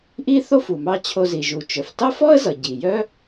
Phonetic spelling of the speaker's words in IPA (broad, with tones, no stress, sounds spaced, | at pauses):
ʔ i˥ θ o˥ f u˩ m ɑ˧ t͡ɕʰ o˧ z i˩ ʒ u˩ t͡ʃ œ˩ f t ɑ˥ f ɔ˥ ə̯ z ʌ˩ ɟ i˩ j œ˥